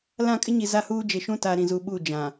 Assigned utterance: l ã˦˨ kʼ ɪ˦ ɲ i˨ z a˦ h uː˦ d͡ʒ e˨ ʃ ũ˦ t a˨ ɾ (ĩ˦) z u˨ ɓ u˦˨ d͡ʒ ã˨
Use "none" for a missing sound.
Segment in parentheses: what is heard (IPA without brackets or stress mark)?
ĩ˨